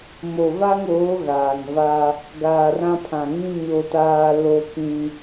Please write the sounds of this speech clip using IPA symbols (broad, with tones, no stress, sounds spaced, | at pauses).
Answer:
m o˨ v a˦ ŋ oː˨˦ ɣ aː˨ ŋ v a˦ | ɡ aː˨ r ã˦ pʰ ã˨ ŋ ĩ˦ ɲ o˦ t aː˦ l o˦ k ĩ˦